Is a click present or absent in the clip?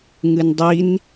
absent